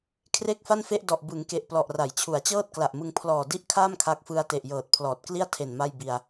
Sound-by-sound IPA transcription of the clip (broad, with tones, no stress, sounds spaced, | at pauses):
kʰ r e˥˩ k̚ f a˥˩ n f e˥˩ ʔ d ɔ˨˩ ʔ b ɯ˩˦ ŋ k e˨˩ ʔ p l ɔ˨˩ ʔ r a˩˦ j t͡ɕʰ u˩˦ a̯ t͡ɕ ɤː˥˩ t̚ k l a˨˩ ʔ m ɯ˧ ŋ pʰ l ɔː˨˩ d i˥˩ ʔ kʰ aː˥˩ m kʰ a˦˥ k̚ f ɯ˦˥ a̯ t e˨˩ ʔ j ɤː˨˩ t̚ pʰ l ɔː˨˩ t̚ k l i˥˩ a̯ tʰ e˨˩ n m a˥˩ j b i˧ a̯